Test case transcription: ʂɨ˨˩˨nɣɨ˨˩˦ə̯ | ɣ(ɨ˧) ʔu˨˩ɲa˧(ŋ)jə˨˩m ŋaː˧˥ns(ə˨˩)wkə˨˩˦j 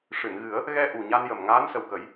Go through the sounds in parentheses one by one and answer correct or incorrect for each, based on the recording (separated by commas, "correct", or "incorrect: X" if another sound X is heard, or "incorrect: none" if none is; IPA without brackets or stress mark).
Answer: incorrect: ɛ˧, incorrect: n, correct